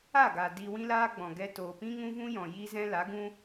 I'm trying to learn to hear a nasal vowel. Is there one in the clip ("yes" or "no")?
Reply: yes